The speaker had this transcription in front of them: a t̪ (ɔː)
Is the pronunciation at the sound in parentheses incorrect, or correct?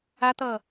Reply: incorrect